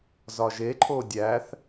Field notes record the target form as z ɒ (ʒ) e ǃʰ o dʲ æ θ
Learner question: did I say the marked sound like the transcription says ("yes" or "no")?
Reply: yes